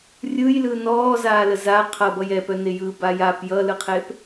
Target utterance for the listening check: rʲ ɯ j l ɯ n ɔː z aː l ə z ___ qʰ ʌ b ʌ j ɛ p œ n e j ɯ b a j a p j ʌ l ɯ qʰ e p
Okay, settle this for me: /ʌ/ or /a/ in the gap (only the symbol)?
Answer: a